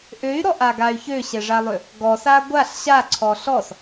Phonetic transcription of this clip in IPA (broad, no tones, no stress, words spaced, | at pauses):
ʔøy̯ɾɔʔaɡay̯ çøɕɛʐalˠø | ɡɔsa ɡʷaɬ ɕaǀʰɔ ɬɔs